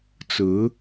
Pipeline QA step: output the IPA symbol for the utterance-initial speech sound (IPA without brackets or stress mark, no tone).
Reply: t͡s